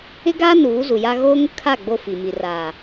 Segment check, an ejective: absent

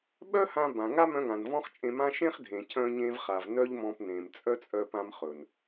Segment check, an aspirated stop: present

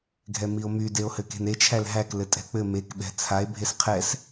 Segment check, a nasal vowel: absent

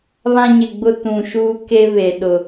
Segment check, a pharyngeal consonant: absent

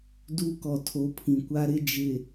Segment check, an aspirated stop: present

